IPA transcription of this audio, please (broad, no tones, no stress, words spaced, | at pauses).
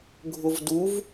ɡʱʊvduv